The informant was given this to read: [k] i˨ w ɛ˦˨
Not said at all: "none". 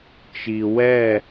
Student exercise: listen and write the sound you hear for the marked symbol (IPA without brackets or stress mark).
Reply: t͡ʃ